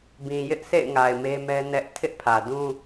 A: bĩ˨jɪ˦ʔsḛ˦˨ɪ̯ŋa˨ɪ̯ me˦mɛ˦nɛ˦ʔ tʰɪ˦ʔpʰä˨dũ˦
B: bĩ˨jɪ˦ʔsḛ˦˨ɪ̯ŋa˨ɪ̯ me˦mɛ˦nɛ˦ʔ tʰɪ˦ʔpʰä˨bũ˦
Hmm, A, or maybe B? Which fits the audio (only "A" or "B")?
A